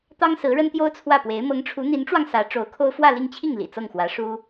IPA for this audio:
t̪ ɑ˥ ŋ s ɹ̩˧˥ ɻ ə˥ n t̪ j o˥ ʊ̯ t͡sʰ w ä˥˩ p w e˧˥ ɪ̯ m ɤ˧˥ ŋ ʈ͡ʂʰ u˧˥ n̪ i˧˥ n ʈ͡ʂ w ɑ˧ ŋ s ä˧˥ ʈ͡ʂ o˧˥ ʊ̯ kʰ o˥ ʊ̯ f w ä˥˧ l i˥˧ ŋ t͡ɕʰ i˥˩ ŋ l ḭ˨˩ t͡s ɤ˥˩ ŋ x w ä˧˥ ʂ u˥

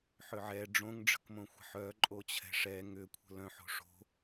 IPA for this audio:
ħ ʏ ʕ ɛ ɖ͡ʐ õ ŋ ɖ͡ʐ ə̤ k m õ xʷ ə̤ ħ œ ǃʼ o t͡ɕʰ ɛ̤ ʂ ɛ ŋ ʏ kʷʰ ə̤ l œ̃ ħ o̤ ʂ o̤

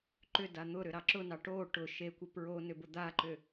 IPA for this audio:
ǃ ʏ d a n̪ ʊ ɾ ʏ ɾ ɑ ǁ ʊ n ɑ ʈ o ʈ ʊ ʃ e kʷ ə p ɹ o n ʏ b ʊ d̪ a ǃ ʏ

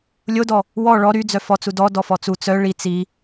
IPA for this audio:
lʲ o d ɔ | w ɔ ɭ ɔ ɾ y d͡z œ f ɔ t͡s u d ɔ d ɔ f ɔ t͡s u t͡s œ ɭ i t͡s i

